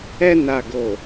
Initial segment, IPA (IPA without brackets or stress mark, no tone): ɛ